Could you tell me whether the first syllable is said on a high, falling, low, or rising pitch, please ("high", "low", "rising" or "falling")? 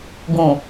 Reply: low